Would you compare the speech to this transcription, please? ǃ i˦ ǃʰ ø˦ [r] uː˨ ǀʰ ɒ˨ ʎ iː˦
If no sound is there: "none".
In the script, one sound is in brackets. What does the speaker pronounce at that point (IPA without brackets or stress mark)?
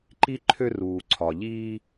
r